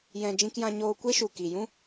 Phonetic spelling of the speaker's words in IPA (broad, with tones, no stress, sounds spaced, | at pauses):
j ɛ̃˧ d͡ʒ ĩ˧ k j ã˧ ɲ oː˧ kʷ e˦ ʃ u˨ k i˨ j ũ˦